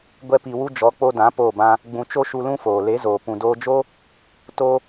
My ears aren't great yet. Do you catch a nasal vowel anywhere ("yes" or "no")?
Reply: yes